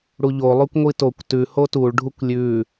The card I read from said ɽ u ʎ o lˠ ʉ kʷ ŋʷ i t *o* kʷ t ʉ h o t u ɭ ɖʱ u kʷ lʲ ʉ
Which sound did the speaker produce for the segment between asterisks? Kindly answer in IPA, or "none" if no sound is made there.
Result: o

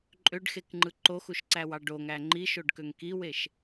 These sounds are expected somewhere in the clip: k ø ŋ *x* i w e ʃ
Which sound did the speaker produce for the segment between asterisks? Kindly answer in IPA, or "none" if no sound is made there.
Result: k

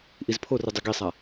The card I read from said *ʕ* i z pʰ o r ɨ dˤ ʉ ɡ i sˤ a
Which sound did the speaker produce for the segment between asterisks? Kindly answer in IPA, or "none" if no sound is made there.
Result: ʔ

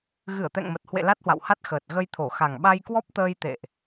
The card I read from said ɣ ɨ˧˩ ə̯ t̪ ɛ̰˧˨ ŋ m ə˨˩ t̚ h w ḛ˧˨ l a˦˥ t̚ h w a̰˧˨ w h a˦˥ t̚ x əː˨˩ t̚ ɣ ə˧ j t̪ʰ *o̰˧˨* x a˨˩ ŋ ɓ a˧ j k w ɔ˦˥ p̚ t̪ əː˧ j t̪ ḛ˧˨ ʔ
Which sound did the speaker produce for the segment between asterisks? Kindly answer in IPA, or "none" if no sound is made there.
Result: o˧˩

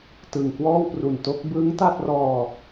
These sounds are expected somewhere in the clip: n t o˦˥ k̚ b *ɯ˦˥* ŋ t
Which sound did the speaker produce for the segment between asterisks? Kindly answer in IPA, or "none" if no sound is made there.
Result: ɯ˦˥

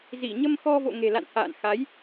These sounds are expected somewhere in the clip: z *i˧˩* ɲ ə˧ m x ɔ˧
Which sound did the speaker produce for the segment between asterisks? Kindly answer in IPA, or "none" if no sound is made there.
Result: i˧˩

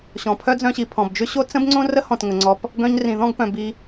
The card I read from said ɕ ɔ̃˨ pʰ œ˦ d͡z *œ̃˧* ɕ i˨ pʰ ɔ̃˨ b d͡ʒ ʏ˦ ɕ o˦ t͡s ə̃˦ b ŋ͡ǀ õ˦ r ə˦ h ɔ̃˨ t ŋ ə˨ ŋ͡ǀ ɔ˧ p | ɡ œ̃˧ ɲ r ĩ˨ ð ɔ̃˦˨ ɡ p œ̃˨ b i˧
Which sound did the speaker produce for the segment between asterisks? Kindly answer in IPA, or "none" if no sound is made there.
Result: œ̃˧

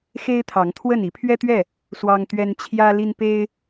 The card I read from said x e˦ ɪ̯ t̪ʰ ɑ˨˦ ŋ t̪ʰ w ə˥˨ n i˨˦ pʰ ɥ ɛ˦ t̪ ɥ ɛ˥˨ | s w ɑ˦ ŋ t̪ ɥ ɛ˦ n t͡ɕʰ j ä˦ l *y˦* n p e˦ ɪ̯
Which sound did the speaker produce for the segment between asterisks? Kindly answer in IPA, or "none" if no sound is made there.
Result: i˦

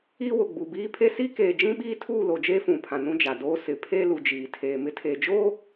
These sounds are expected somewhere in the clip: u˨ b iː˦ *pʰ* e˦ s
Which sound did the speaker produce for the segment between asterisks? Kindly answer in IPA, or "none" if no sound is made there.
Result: pʰ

